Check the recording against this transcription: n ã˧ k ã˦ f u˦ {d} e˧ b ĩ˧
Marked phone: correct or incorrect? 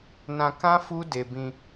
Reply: correct